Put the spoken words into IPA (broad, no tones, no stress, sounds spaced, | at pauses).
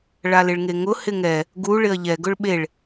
ɭ a l ɪ ɭ ŋ e ŋ ʊ h ɪ ŋ ɛ | ɡ u ɭ ɪ ɐ̯ ʎ ɛ ɡ ʊ ɭ ɓ e ɭ